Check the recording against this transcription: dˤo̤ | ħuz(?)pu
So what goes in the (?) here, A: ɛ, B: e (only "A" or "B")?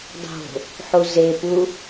B